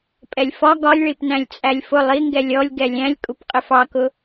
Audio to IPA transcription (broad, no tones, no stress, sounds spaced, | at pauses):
pʼ ɛ lʲ f ɒ ɡ ɒ lʲ ɭ i p n æ̃ lʲ t͡sʼ æ lʲ f ʊ lˠ i ŋ ɡ ɛ lʲ ɔ lʲ ɡ ɛ lʲ æ̃ lʲ kʼ u p qʼ ɪ f ɑ k ʊ